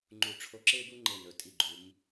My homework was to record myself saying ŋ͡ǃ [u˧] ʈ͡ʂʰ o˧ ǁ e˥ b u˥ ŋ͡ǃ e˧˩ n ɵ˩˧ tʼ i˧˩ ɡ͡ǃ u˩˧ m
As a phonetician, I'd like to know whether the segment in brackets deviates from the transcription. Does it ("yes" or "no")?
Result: yes